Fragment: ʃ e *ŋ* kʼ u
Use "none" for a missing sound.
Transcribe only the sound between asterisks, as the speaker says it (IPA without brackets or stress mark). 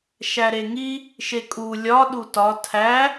none